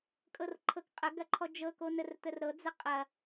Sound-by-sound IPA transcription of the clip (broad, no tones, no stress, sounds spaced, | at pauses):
kʼ ɤ r ǃʰ ɤ k qʼ ə ɡ ɐ ǃʰ ɔ d͡ʒ ɤ k o n ə r t̪ ə r ɾ ɤ d͡z ə qʼ ɐ